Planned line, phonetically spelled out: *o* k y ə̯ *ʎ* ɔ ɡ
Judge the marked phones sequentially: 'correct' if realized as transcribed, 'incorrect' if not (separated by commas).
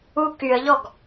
incorrect, correct